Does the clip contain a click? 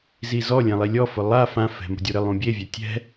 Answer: no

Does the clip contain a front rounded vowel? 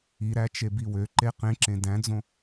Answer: yes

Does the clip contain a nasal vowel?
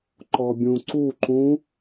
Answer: yes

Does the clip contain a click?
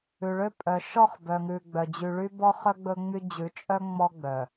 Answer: no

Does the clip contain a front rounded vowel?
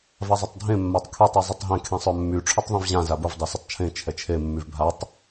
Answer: yes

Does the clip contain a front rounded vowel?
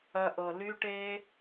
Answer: yes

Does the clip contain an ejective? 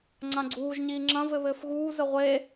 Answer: no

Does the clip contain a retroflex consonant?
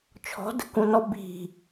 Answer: no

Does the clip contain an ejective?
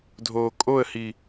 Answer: yes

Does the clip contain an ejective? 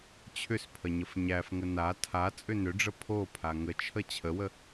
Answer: yes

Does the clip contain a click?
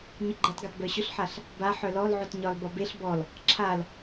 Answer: yes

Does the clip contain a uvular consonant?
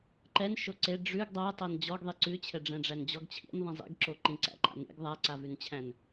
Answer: no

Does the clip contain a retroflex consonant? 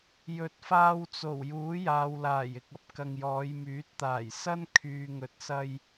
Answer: no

